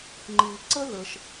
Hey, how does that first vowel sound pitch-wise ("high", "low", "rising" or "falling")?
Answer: low